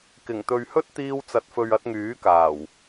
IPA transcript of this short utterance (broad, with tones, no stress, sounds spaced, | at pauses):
k ɪ˨˩ ŋ t̪ ɵ˨ ɥ h ɵ˥ t̚ t̪ iː˧ w t͡s ɐ˨ t̚ f ɵ˨ ɥ ɐ˧ t̚ ŋ yː˨˥ k aː˨˩ w